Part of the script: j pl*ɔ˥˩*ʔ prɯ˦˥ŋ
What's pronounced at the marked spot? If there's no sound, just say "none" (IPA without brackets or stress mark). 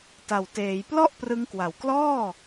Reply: ɔ˥˩